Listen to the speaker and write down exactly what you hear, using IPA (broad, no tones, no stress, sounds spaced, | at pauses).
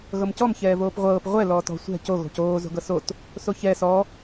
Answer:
ɣ ɤ m c ɔ m ç ɛː v oː p ʁʷ ɤː p ʁʷ ɛ l ɔː t ɔ̤ sʷ ɛ̤ c o ɣ o̤ c oː z o̤ ɡ ɤ s o t | s o ç ɛ s ɔ